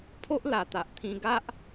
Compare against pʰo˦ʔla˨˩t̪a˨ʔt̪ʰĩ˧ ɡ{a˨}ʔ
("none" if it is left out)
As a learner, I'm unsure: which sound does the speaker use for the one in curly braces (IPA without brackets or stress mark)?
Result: a˦